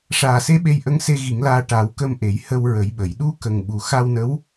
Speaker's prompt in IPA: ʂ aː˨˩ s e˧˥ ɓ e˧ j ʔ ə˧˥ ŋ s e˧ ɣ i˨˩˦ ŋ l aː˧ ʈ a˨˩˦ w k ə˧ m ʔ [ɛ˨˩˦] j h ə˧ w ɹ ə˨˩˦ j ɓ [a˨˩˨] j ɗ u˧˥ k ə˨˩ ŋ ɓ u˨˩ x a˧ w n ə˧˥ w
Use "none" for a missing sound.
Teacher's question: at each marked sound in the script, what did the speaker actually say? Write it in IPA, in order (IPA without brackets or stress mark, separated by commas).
e˨˩˦, ə˨˩˨